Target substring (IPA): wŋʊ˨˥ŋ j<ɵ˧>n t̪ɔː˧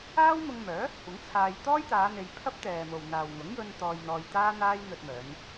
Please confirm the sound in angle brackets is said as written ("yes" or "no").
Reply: yes